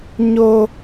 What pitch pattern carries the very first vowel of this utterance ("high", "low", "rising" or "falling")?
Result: high